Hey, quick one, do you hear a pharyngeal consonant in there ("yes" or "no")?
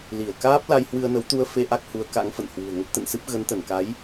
no